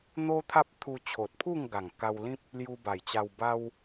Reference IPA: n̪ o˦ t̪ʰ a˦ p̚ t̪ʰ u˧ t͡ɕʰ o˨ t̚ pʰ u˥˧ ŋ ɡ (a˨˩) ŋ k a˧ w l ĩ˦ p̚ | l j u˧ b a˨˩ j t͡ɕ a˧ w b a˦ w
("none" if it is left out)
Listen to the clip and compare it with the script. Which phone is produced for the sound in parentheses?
a˨˩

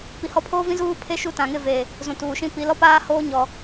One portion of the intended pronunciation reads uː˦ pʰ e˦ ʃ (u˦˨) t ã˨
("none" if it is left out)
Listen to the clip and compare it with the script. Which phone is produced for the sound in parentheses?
u˦˨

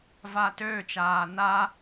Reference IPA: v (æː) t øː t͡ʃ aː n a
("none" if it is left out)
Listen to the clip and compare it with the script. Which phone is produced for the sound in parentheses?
aː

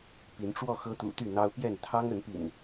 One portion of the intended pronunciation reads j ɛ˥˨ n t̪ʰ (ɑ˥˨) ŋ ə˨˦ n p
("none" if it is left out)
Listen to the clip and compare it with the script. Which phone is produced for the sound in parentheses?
ɑ˦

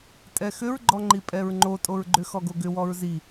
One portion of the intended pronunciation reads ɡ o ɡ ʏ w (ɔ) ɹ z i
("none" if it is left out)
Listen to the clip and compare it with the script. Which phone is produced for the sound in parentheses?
ɔ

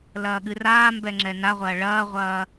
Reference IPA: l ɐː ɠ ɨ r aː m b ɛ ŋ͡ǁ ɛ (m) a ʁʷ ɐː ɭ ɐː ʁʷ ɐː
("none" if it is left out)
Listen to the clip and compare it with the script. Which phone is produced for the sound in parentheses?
n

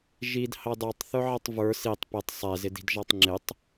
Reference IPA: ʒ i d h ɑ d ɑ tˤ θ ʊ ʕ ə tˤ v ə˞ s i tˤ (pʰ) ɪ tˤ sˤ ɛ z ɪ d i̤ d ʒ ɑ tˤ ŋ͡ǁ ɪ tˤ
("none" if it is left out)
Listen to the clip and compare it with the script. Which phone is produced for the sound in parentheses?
p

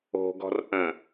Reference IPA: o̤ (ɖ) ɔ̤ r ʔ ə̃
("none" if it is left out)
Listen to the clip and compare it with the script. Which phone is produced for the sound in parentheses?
ɡ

